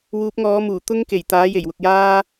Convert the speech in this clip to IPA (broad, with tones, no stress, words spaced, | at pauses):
wuː˨˥p̚ŋɔː˨˥muː˨˩ t̪ʊ˥ŋke˨˩jt̪aː˨˥ je˨˩jwʊ˨k̚ jaː˥